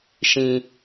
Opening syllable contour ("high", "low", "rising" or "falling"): low